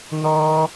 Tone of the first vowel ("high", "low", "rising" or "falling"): high